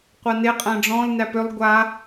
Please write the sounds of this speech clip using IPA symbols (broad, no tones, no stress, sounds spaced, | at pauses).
qʷ a n e qʼ æ̃ ɖ͡ʐ ɔ̃ l n æ p ʏ lˠ ɡʷ a